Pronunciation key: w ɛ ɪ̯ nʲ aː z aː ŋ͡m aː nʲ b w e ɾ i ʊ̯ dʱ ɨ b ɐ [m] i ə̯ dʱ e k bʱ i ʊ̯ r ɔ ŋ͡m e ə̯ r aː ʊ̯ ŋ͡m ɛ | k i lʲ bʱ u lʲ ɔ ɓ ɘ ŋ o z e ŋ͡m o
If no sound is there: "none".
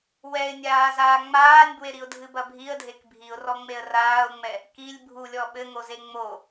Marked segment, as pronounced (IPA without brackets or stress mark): bʱ